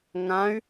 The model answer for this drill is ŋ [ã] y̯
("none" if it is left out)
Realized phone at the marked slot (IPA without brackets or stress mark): ã